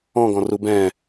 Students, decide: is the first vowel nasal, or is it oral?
nasal